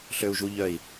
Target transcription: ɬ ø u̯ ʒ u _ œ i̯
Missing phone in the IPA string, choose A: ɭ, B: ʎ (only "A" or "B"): B